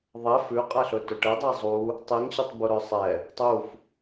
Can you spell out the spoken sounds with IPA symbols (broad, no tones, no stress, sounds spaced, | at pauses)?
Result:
ðˤ ɛ f ʉ qʼ æ ɬ ɵ t ɵ ʈ ɛ dˤ i zˤ u | tˤ i ŋ ɕ ɵ tˤ b u ɾ œ sˤ ɛ | tˤ u f